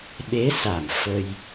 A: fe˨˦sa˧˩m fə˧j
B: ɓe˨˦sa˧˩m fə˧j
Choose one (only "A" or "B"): B